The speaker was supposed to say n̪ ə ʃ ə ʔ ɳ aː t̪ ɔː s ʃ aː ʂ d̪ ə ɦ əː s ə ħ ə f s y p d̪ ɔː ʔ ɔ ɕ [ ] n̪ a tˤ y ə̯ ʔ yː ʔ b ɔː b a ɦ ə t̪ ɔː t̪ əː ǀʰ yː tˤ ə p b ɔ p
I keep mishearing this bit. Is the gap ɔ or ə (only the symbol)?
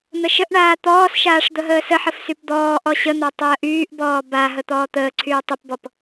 ə